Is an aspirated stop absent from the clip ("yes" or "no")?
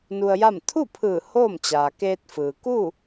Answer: no